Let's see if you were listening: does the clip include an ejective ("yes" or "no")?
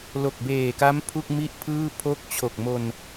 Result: no